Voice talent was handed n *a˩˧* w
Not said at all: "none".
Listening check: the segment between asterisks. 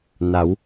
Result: a˩˧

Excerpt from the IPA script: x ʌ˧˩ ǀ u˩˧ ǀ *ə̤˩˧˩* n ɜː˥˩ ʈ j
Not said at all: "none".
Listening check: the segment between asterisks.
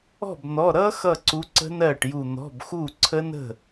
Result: ə̤˦˥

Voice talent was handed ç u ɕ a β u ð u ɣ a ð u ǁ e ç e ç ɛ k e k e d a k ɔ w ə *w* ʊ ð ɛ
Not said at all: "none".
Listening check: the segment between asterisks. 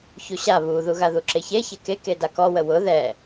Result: w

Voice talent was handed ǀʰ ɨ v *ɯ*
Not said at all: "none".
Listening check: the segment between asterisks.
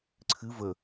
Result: ə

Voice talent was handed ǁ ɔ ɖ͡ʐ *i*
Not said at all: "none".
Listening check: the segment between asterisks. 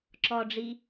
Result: i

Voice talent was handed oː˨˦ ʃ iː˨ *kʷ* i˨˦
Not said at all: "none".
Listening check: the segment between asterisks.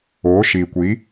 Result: kʷ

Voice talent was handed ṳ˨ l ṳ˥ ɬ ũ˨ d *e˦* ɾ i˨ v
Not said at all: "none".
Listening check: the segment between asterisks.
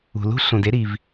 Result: e˦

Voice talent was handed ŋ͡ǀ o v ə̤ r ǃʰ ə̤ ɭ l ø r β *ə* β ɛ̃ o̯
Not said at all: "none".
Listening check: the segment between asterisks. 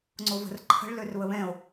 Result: ə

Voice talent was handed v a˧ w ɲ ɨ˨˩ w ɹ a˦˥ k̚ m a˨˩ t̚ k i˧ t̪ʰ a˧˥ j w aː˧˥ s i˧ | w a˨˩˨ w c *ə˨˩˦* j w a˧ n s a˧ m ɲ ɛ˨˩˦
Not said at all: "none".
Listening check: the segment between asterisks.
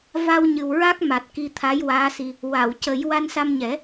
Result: ə˨˩˦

